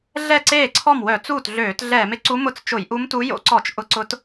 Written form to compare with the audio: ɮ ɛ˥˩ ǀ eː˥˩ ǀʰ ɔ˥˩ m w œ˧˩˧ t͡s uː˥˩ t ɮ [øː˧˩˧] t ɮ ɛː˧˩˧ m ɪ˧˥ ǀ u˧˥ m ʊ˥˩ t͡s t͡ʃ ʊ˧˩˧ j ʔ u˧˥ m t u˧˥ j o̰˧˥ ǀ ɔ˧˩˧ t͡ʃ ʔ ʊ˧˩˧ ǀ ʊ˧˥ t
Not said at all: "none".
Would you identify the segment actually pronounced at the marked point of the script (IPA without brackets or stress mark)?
øː˧˩˧